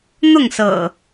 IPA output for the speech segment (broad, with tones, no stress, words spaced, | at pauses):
n̪ʊ˥˨ŋsɤ̰˨˩